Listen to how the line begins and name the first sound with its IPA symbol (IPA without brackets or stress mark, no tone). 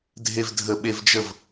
dʱ